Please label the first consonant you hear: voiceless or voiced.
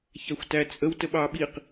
voiceless